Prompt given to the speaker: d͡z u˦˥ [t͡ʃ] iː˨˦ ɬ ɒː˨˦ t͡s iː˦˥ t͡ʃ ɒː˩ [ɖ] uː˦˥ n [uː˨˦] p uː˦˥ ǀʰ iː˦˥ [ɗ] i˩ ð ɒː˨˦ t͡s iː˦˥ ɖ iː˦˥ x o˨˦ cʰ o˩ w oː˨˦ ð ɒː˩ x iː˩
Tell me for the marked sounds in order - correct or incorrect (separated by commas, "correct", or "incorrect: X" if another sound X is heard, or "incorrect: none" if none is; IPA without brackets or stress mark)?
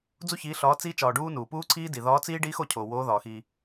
incorrect: ç, correct, incorrect: uː˩, incorrect: d